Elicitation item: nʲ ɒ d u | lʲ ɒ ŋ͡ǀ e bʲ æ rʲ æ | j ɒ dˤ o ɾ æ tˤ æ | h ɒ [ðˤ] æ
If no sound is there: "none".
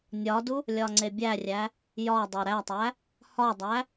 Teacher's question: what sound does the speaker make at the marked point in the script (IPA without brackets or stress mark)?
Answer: dˤ